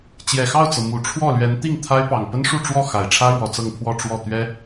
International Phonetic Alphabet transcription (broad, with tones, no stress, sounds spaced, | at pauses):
t͡ɕ j ɛ˨˩ x ɑ˥˩ ʊ̯ t͡s ɤ˩ m u˨˩ ʈ͡ʂʰ w ɔ˥˩ l ɥ ɛ˧˥ n t̪ i˥˩ ŋ t̪ʰ a˥ ɪ̯ p ɑ˨˩ ŋ p ə˥ n ʂ u˥˧ ʈ͡ʂ w ɔ˥˩ x a˨˩ ɪ̯ ʈ͡ʂʰ ä˥ ɻ w ɔ˨˩ t͡s ɤ˥˧ ŋ pʰ w ɔ˥˧ ʈ͡ʂ w ɔ˥˩ t̪ ɥ ɛ˥